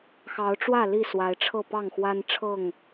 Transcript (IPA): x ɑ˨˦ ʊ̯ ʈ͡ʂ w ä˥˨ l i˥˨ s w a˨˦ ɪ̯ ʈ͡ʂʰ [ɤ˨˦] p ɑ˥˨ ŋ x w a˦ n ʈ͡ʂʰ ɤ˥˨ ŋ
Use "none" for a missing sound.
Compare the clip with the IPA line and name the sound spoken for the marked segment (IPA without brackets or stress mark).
ɤ˥˨